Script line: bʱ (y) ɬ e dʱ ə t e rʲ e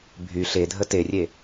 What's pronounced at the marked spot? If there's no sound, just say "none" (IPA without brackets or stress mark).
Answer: y